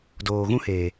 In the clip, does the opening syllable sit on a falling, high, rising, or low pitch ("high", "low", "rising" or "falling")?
low